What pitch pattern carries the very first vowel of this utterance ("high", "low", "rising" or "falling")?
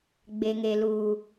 high